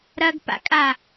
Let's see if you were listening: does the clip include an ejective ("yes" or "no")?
yes